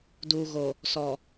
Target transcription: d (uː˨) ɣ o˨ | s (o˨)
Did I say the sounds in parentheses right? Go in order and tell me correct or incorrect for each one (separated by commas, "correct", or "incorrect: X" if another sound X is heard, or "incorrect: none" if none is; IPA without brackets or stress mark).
correct, incorrect: ɔ˨